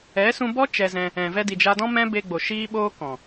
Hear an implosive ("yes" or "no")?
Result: yes